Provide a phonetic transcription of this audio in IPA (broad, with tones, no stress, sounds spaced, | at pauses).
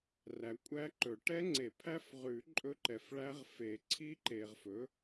r æ˨ kʷʼ æ˦˥ ǃ ɵ˨˩˦ ʈ ɛ˦˥ ŋ͡ǀ e˨˩˦ pʰ æ˦˥ f ʁ ʉ˨˩˦ ǃʼ ɵ˦˥ ǃ ɛ˨ f ɭ æ˦˥ ʁ f e˨˩˦ ǀʰ i˦˥ ǃ e˨ ʁ f ɵ˩˥